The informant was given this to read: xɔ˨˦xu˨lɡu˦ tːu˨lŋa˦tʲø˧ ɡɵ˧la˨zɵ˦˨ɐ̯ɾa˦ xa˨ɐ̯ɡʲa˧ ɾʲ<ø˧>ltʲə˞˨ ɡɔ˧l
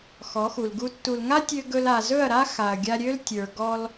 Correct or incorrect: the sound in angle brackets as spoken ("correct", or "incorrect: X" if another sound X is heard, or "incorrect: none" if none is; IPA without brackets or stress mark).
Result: incorrect: ø˦